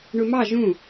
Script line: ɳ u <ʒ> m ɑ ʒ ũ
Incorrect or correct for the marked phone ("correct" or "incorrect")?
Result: incorrect